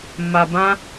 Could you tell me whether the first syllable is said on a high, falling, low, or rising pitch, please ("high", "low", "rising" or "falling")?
low